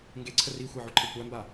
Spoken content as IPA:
ŋ ɡ e ǀʰ ə r i xʷ a ʕ o ǃʰ e kʷ æ m b a

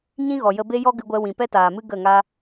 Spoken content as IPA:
ɲ ĩ˦ ɣ ɔ˨ j ə˧ b e˦ j ɔ˦ ɡ ɨ˧ ɡʷ ɛ˧ w ĩ˨ p ɛ˦ t aː˨ m ɨ˦ ɡ ə˦˨ ŋ a˦

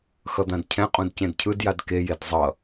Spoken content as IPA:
x ʌ d̪ ã d cʰ ɛ̃ qʼ ũ d c ẽ d cʰ ɯ d j a d k e j e d zˤ ʌ

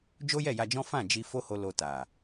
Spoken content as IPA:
d͡ʒ o˦ j ɛ˦˨ j a˧ d͡ʒ ɔ̃˦ f ã˦˨ d͡ʒ i˧ f o˦ h o˧ l o˧ t a˨

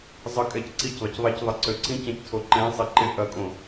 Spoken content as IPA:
zˤ ə kʼ ɛ c ǀ i c ðˤ ɪ c ðˤ ɛ c ðˤ ɪ ǀ ø ǀ ĩ c ɛ̃ c tʰ o ǃ ɛ̃ sˤ i ǃ ɪ ʔ ɐ kʼ õ

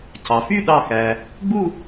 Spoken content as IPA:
c ɑ˩ f y˥˧ ɗ ɑ˧˩ x æ˩ | ɡ͡b u˥˧

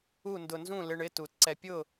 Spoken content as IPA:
u˥˨ n d ʊ˧ n z ũ˥˨ l ɪ˧˥˧ ɳ ɪ˧˥˧ t u˨˩˦ t ǀ ɛ˧ pʲ ʊ˥˨

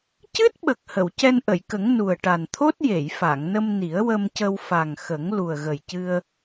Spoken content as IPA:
c ɨ˦˥ t̚ ɓ ə˨˩ k̚ h ə˨˩˨ w c ɛ˧ n ʔ ə˨˩˨ j k ə˨˩˦ ŋ n u˨˩ ə̯ ʈ a˨˩ n t̪ʰ o˦˥ t̚ j e˨˩˨ j f a˨˩˨ ŋ n ə˧ m n i˨˩˦ ə̯ w ə˧ m c ə˧ w f a˨˩ ŋ x ə˨˩˦ ŋ l u˨˩ ə̯ ɣ ə˨˩ j c ɨ˧ ə̯

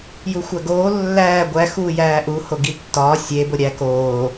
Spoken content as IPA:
j u xʷ æ ɡ oː lː æː ɡʷ æ x uː j æː ʔ u h o ɡ i tː ɒː sʲ e b o ɾʲ æ k oː

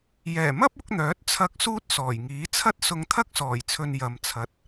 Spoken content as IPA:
j ɛː˨˩ m ɐ˥ p̚ ʊ˨˥ k̚ n̪ œː˨˥ t̚ t͡sʰ ɐ˧ k̚ s uː˥ t̚ s ɔː˨˩ j ŋ iː˨˥ t͡sʰ ɐ˥ t̚ s ʊ˧ ŋ t̪ʰ ɐ˥ k̚ s ɔː˨˩ j t͡sʰ ɵ˧ n j ɐ˨ m t͡sʰ ɐ˨˥ t̚

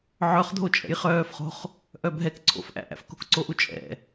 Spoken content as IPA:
ʕ œ χ dʱ o t͡ʃʼ ɛ̰ j χ œː f χ o̤ χ | ʔ œ bʱ ɛ k ǀʰ o̰ f ʔ æ̰ ʔ æ̰ f k o̤ k ǀ o ʔ u t͡ʃʼ ɛ̰

